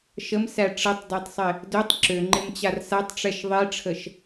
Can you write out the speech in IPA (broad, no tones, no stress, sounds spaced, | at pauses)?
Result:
ʃ ə m s æ ʈ͡ʂ ə tˤ d æ tˤ sˤ ɪ | d ø tˤ ǁ ø ŋ͡ǃ ɪ m t͡ɕ a r s a tˤ ʈ͡ʂ ɛ ʃ ðˤ i ʈ͡ʂʰ ə ʃ